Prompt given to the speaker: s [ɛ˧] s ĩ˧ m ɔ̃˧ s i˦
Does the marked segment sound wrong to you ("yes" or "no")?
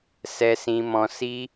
no